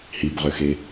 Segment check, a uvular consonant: present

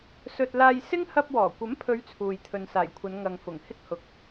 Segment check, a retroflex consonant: absent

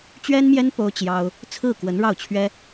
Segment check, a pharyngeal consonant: absent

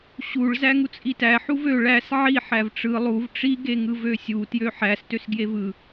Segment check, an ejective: present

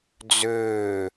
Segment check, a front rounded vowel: present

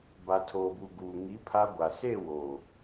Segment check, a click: absent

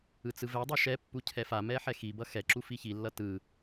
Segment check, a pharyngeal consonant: present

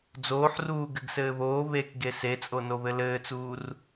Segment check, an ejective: present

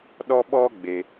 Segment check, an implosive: present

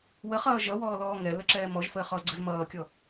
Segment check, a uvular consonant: present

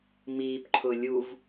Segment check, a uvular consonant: absent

